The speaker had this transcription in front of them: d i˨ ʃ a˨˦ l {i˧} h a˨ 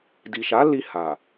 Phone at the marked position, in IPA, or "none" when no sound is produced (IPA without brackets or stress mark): i˧